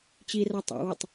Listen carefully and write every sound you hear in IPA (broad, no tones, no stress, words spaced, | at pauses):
t͡ɕira tˤa̰witˤ